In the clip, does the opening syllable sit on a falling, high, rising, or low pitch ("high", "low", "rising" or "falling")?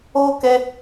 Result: high